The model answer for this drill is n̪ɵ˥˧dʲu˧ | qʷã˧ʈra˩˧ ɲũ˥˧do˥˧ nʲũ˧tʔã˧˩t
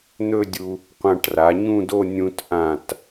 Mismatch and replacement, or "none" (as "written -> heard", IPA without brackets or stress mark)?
none